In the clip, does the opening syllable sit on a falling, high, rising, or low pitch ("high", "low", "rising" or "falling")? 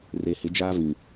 low